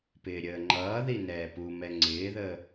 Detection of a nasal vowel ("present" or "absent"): absent